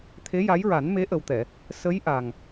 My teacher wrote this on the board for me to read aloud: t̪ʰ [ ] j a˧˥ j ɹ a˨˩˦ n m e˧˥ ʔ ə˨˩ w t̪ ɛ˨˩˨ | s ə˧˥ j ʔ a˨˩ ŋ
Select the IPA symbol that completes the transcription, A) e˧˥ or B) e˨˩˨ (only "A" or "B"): A